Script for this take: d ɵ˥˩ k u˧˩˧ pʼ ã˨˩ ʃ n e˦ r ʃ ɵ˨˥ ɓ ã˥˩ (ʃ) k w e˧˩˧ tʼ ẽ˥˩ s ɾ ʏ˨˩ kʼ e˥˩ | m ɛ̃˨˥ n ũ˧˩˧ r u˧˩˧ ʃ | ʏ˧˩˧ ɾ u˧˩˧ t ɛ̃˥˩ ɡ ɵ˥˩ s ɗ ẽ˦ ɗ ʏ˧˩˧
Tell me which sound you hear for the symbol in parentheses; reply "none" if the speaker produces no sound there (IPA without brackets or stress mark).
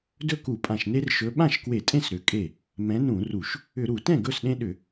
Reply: ʃ